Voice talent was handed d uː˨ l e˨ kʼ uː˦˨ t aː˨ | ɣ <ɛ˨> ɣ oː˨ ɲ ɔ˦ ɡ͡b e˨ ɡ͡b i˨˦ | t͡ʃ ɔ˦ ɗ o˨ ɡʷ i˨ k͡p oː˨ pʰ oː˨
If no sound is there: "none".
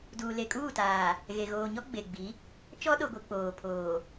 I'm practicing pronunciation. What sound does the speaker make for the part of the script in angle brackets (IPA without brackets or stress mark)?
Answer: e˨